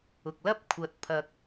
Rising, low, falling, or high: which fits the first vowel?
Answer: low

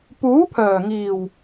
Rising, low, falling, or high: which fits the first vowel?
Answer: rising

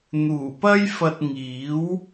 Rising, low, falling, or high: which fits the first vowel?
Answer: low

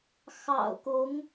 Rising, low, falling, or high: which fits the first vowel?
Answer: low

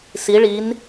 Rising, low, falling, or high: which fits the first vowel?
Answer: rising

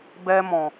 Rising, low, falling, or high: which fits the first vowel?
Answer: high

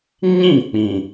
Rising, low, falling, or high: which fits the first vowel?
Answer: falling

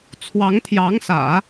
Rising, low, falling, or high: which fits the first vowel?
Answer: rising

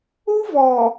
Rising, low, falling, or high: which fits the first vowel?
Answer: high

